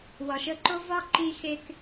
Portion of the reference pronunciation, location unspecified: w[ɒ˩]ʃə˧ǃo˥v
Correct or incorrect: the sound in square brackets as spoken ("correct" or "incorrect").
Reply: correct